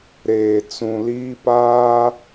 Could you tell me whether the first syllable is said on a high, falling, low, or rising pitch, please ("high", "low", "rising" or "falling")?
low